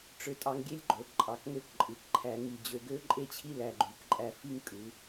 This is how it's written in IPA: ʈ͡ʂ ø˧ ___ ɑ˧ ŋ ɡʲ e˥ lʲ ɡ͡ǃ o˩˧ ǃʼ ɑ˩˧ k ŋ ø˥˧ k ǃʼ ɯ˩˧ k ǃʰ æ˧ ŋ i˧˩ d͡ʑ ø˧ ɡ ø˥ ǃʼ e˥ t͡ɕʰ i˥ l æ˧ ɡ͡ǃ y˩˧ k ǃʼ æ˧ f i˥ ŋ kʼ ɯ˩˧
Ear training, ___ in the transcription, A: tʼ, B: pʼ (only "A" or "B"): A